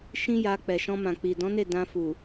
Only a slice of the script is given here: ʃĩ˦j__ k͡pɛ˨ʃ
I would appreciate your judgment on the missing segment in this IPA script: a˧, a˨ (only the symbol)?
a˧